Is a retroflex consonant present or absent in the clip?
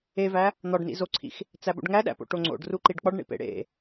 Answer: present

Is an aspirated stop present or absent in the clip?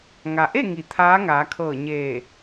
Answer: present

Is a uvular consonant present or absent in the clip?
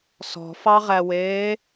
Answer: present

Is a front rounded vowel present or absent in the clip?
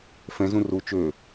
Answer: present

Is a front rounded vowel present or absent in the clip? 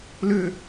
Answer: present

